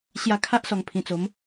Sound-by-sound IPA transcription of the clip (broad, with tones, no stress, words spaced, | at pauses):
ɕja˧kʰa˦ʔ sɔ˨˩ŋpʰĩ˨˩t͡so˨˦m